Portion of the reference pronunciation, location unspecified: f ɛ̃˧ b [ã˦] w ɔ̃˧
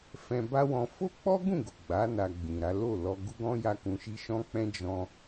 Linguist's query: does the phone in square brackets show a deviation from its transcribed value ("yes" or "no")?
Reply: yes